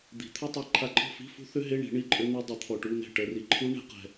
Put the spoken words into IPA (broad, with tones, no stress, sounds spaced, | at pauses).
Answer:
d̪ i̤˨˩˦ t̪ʰ ʏ˧˥˧ tˤ ɜ˧ ǃʰ a˧ ǃʼ ɔ̤˥˨ f i̤˧˥˧ f ṳ˦˥ θ ʏ˦˥ ɦ e˧˥˧ ɳ i̤˨˩˦ ɳ i˦˥ ǃʼ ʏ˦˥ n̪ e˦˥ dˤ i˨˥ t̪ʰ ɔ˧ ʈ u˧˥˧ n ɛ̤˥˨ ʈ ɜ˧ r i˧ ǃʰ u˦˥ ɳ ɛ̤˨˥ q ɛ̤˧